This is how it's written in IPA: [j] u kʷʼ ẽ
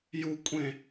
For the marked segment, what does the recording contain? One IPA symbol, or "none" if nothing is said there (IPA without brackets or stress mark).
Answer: j